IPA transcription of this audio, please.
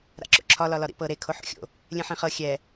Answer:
ɾa̰ǁo̰ǁʰɒ lɒlɒɾḭpɤ ɾe kʰoħo̰xʲo̰ | lʲẽħẽχɤ xʲɛ

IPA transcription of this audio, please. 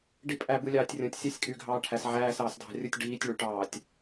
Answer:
ɖipʼæ bɯlʲɑːtʲrʲõtʲ sʲɑsʲkʼy ɡʱɑːʈʰæs ʕæːs ɑːsdʱɑ̤rʲɯtʲ ɖiːtʲɭyʈɑːtʲ

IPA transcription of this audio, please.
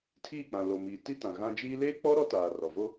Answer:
tʰiː˦˨k͡pã˨ lo˨ miː˨ti˦tã˨ ɣã˦ d͡ʒiː˦ leː˦k͡pɔ˦ ɾɔ˦taː˨rɔ˨ vo˦

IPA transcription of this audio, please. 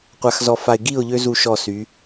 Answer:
qʷa˨xzɔ˨ fa˨ɪ̯ɡi˦˨ʊ̯ʎø˦ zu˦˨ʃɔ˦˨sy˨˦

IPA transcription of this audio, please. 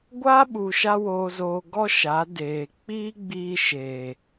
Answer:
ɡʷaː˦ɓu˨ʃa˧ woː˧zoː˧ ɡɔ˦ʃa˨˦ deː˨ k͡piː˦ɡ͡biː˧ ʃe˨

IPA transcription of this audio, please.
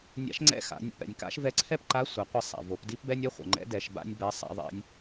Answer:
nʲa̰˧˥ʃŋ͡ǀɛ̰˥xa̰˩˧ nʲa̰˩pɛ̰˩nʲka̰˧˥ʃ vɛ˧˥ǀʰɛ˥pǃa˧˥ sʷa˩˧qʷɛ˧sˤa̰˩ vo˩˧pdi˥pbɛ˥nʲ ɛ˥χʷɛ̰˩ŋ͡ǃɛ̰˧˥ dɛ˩˧ʃba̰˥nʲbɛ˧˥ sˤa̰˥ðˤɛ̰˧˥nʲ

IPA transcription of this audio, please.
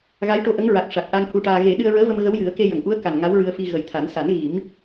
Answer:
ɣa˧˥jʈo˧ʔə˧˥ŋɹa˨˩k̚ ʂa˨˩k̚ʔa˧ŋ hu˧ʈaː˧ ɣe˨˩˦ ɗɨ˧ə̯ɹəː˧˥və˧m ɣə˧˥wjɨ˨˩˦ə̯ ke˧jə˨˩˨ŋʔu˧˥ə̯ ka˨˩n ŋa˧˥wɹɨ˧ə̯fi˧ ɣə˨˩jt̪ʰa˨˩˦n sa˨˩˦nɣi˨˩˦m

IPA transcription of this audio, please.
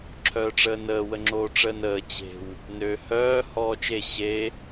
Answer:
ǁʰœːʈ͡ʂəːnəː wəŋ͡ǁoːʈ͡ʂəːnəː t͡ɕe̤w | nø hœː hɔːt͡ʃe ɕe

